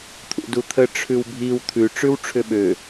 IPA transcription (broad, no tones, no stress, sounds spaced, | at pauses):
t̪ʰ ṵ d u t̪ʰ ə ʈ͡ʂʰ ʉ w bʱ i w t̪ʰ ʉ ʈ͡ʂ ʉ w ʈ͡ʂʰ ʏ ɓ ø